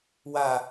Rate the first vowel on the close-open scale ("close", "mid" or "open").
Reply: open